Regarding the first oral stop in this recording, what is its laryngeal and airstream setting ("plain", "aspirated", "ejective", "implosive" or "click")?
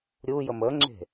click